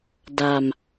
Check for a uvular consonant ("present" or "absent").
absent